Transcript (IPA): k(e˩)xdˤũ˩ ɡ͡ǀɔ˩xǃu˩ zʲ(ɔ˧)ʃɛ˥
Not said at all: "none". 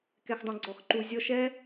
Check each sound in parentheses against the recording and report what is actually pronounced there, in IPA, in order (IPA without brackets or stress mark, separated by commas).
ɛ˩, ɔ˧